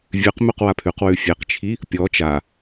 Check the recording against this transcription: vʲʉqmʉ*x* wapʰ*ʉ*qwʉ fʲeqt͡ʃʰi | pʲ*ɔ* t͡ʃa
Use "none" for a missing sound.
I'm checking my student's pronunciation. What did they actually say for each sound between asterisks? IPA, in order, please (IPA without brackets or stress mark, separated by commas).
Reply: q, ʉ, ɔ